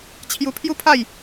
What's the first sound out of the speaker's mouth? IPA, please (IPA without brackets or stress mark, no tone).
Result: t͡ɕʰ